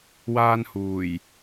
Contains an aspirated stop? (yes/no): no